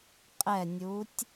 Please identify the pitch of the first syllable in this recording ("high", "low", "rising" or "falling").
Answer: falling